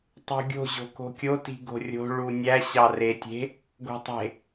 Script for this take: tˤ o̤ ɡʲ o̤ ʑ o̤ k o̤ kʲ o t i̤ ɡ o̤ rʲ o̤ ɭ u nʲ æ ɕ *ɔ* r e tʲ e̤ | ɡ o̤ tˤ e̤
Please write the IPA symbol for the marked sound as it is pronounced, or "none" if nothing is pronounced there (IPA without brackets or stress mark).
ɑ